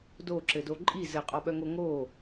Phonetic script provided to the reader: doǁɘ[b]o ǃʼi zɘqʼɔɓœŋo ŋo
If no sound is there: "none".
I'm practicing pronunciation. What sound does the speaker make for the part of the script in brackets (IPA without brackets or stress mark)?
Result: d